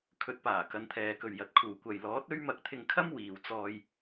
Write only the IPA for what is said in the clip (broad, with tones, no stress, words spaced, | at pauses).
kʰɵ˨˥t̚paː˨˩ kɐ˨˧nt̪ʰɛː˨kɵ˨ɥ jɐ˨t̚kʰuː˨ kʷɐ˨jlɔː˨˥t̚ ɵ˥ɥ mɐ˧k̚t̪ʰɪ˧ŋkʰɐ˥m wiː˨wt͡sɔː˧j